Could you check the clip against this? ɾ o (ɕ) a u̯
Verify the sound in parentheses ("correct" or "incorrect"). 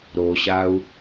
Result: correct